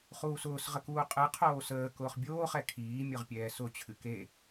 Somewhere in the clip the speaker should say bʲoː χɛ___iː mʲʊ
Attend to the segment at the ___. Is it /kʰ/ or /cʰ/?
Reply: kʰ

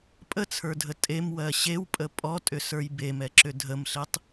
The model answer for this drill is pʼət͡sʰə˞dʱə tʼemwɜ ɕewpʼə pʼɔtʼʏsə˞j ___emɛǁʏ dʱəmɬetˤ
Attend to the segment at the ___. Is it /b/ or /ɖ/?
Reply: b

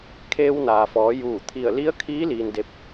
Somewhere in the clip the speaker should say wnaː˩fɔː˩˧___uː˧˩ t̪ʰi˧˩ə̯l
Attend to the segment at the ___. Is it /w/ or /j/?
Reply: j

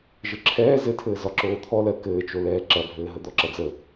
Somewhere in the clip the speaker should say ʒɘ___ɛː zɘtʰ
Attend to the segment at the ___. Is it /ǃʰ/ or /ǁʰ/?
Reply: ǁʰ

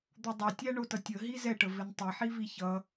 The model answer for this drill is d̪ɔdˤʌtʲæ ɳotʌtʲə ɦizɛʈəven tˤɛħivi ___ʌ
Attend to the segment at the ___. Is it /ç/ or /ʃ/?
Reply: ç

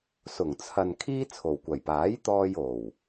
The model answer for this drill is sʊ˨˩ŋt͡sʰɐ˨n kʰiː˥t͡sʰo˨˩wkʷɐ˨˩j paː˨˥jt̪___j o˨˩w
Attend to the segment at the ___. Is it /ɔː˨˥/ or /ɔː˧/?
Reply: ɔː˧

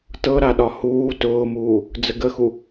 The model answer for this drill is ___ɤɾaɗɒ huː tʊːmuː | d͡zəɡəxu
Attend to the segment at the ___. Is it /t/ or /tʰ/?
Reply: t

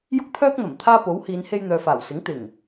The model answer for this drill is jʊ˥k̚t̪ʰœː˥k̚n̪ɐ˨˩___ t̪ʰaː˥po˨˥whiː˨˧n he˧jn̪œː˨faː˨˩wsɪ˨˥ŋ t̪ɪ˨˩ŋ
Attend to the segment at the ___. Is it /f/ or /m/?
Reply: m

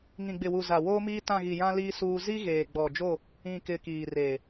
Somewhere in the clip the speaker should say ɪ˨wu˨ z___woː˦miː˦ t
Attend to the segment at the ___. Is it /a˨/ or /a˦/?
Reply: a˨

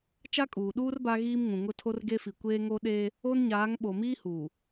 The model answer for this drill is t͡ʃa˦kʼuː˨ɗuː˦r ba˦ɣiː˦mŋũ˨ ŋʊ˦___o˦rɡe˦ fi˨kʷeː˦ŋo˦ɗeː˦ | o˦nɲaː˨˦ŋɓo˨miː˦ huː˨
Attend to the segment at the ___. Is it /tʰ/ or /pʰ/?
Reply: tʰ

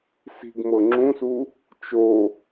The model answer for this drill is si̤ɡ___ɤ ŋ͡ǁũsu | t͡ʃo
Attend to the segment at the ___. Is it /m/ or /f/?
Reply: m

